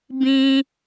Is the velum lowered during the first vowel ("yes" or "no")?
yes